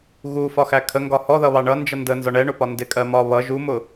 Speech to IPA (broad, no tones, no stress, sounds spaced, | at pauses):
ɣ u f ɒ x æ kʰ ə ŋ ɡ ɒ h ɔ ð ʌ β ɑ ɳ ʌ n d͡ʒ ʌ n d ə n z ɒ ɳ ɛ ɳ ʊ p ɒ n d ɪ kʼ ɜ m ɒ β ʌ ʒ u m ʊ